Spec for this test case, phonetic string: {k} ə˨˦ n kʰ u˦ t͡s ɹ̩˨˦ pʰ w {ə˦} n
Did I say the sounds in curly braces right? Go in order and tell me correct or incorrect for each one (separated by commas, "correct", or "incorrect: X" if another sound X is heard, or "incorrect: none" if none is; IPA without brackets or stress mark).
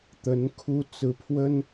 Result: incorrect: t̪, correct